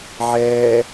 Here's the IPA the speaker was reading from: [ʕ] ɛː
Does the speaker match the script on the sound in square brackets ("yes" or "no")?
yes